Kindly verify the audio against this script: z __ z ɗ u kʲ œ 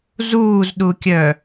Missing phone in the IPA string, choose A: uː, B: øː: A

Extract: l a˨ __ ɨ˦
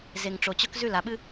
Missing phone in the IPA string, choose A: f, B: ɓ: B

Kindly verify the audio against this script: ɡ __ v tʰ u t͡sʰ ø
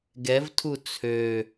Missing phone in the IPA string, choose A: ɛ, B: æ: A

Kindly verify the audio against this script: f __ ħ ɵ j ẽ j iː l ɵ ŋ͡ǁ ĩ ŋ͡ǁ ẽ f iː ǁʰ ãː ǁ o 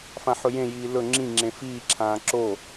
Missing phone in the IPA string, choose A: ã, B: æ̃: A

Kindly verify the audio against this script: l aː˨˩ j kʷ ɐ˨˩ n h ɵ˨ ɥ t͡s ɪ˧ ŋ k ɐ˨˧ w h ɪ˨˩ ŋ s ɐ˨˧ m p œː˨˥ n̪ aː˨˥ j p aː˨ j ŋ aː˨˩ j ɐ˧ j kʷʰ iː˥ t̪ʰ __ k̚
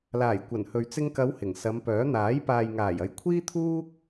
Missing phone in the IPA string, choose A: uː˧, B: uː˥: B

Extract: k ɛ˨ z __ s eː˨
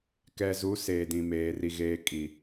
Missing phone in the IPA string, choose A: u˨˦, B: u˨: A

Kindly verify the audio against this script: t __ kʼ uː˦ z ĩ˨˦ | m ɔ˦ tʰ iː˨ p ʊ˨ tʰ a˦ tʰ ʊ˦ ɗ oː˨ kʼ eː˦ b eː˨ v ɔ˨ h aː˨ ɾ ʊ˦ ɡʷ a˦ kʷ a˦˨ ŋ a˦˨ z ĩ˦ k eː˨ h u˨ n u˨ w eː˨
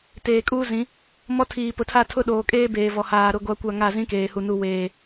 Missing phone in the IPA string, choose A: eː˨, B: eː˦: A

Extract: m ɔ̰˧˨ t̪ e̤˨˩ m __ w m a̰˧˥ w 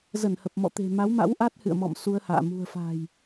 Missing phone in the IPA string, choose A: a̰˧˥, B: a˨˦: B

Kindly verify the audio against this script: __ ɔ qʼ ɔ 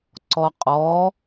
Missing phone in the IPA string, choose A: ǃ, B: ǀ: B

